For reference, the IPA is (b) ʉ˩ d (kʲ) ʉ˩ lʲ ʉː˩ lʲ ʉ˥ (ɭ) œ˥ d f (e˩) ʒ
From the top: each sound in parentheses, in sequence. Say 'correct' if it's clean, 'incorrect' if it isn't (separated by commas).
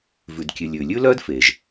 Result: incorrect, correct, incorrect, correct